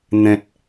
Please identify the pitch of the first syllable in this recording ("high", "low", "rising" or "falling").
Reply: low